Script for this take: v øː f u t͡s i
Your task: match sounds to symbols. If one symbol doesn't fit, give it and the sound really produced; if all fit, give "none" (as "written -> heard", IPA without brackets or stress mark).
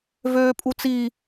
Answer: f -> pʼ